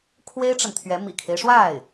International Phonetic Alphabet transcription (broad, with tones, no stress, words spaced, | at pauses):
kʰwe˥ɪ̯ʈ͡ʂə˨nt̪ʰɥɛ˧˥ mḭ˨˩kʰe˦ɪ̯ʂwa˥˩ɪ̯